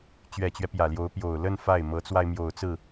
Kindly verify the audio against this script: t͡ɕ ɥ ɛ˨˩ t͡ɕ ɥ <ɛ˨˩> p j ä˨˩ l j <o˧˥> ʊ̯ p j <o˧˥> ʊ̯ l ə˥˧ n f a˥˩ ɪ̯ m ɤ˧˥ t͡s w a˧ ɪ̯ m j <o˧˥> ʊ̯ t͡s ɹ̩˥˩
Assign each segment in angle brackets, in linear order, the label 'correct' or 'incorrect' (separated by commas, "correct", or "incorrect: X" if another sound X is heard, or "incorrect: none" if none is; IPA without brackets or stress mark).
incorrect: ɛ˦, correct, incorrect: o˨˩, incorrect: o˨˩